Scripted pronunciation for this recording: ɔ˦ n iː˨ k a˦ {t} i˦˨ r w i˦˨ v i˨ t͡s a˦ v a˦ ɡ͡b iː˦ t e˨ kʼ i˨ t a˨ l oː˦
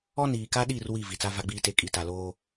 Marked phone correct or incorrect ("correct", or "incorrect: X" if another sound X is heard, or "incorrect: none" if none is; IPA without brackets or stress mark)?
incorrect: ɗ